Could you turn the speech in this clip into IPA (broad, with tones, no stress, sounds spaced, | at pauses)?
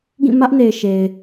ɡ ĩ˦˨ m ä˦ ʔ n e˨ ɪ̯ ʃ e˨ ɪ̯